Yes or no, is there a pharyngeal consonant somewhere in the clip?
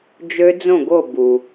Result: no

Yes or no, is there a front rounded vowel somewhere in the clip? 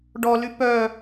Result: yes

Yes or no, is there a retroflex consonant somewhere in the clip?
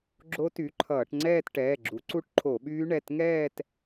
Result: yes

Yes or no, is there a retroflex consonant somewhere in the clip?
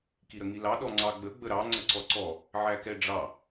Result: yes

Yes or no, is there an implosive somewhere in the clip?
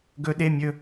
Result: yes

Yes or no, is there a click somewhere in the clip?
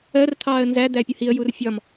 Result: no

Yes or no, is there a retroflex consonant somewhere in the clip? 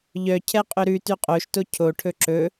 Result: yes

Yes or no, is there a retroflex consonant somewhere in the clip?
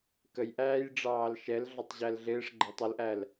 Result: yes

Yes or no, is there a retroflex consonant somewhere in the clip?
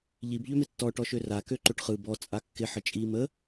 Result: yes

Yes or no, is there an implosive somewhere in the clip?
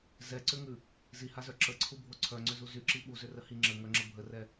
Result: yes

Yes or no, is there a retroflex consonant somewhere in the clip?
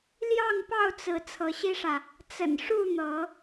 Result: yes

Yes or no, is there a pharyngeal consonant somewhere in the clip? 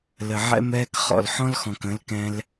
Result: yes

